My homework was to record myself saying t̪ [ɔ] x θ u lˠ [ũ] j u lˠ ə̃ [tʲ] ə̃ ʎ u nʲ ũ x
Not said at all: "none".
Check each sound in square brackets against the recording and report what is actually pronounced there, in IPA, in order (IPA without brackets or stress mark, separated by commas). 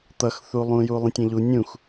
ʌ, ũ, tʲ